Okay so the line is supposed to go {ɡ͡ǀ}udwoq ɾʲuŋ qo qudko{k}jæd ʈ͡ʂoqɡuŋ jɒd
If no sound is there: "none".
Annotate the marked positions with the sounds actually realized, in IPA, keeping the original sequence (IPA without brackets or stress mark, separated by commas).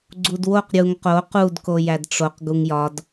ɡ͡ǀ, none